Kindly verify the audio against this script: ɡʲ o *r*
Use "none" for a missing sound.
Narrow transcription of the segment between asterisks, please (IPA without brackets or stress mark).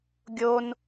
n